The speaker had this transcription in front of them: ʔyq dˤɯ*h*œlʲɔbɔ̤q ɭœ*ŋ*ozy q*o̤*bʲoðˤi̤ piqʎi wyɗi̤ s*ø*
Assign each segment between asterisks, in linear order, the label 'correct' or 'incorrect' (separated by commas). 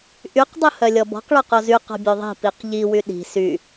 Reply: correct, incorrect, incorrect, incorrect